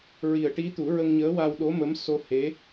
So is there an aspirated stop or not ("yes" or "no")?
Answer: no